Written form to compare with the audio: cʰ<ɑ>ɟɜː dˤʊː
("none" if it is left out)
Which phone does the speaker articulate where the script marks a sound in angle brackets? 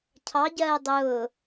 ɑ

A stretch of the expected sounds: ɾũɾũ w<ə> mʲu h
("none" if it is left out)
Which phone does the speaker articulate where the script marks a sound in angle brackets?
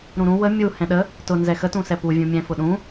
ə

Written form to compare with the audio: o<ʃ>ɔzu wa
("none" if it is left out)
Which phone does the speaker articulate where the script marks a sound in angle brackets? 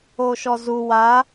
ʃ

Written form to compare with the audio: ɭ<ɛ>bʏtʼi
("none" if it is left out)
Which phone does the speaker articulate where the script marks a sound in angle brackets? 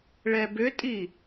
ɛ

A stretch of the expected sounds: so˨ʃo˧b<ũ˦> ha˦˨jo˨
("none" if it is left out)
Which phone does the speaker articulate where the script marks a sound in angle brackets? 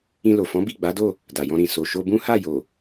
ũ˦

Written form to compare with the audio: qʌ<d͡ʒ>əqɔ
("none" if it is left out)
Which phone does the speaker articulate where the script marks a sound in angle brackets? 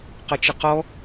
t͡ʃ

